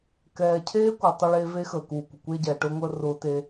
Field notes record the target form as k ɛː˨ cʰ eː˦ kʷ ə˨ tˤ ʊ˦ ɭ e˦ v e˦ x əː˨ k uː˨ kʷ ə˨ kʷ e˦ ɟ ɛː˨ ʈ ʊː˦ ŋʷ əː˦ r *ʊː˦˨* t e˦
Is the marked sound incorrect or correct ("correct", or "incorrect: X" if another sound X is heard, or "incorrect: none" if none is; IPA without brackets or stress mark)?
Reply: incorrect: ʊː˦